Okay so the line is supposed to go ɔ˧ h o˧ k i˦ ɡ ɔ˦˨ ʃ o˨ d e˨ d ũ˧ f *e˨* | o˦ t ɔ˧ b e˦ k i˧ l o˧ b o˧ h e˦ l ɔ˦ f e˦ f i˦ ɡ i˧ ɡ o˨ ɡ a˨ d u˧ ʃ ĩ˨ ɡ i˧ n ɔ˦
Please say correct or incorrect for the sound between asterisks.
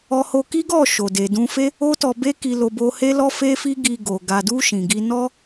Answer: incorrect